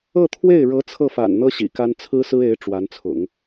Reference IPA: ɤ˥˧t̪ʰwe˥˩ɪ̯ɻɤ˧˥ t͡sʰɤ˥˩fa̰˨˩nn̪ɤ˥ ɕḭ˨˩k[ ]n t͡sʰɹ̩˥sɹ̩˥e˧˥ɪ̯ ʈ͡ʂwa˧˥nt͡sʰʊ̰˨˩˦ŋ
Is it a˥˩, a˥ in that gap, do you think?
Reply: a˥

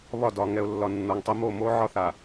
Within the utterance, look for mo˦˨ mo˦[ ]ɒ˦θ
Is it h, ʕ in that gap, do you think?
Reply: ʕ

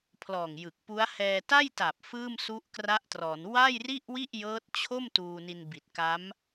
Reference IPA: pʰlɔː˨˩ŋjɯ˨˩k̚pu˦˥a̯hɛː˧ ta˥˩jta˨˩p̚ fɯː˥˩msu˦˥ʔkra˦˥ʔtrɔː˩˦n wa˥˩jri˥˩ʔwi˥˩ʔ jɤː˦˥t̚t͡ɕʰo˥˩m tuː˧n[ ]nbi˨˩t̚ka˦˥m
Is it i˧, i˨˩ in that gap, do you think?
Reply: i˧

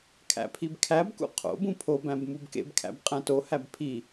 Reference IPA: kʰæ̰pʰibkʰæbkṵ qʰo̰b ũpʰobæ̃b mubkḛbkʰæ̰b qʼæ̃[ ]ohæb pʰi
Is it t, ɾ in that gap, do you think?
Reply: t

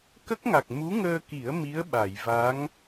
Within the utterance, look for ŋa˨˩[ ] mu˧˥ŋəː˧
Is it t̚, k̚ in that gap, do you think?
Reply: k̚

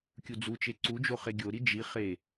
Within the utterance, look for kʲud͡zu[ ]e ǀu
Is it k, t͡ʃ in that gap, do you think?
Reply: t͡ʃ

